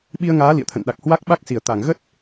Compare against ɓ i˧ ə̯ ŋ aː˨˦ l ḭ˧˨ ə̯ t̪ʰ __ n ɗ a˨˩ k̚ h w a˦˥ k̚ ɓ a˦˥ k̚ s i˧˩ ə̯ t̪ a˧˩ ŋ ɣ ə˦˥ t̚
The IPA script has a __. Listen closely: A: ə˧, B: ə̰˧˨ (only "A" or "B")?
B